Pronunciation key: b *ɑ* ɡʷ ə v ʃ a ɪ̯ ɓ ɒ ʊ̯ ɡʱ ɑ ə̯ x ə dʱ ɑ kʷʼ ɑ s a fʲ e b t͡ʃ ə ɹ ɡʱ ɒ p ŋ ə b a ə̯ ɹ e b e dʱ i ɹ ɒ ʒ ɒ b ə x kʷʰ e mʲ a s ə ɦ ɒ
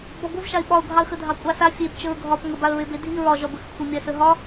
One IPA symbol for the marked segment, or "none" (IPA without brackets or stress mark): ɒ